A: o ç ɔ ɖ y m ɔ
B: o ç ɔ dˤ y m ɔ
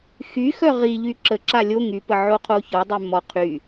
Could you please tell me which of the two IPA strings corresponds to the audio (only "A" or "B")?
B